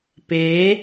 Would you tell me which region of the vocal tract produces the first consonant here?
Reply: lips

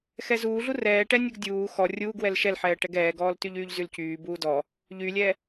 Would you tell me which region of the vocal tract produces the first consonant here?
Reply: velum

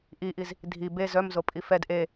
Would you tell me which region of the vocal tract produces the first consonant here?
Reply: throat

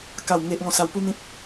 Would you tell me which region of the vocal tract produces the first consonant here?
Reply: velum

